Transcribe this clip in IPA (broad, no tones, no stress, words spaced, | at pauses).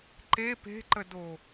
ǃe pe̤ǃədo